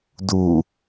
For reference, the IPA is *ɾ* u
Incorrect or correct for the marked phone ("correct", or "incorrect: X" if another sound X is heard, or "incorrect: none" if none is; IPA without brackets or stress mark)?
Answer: incorrect: d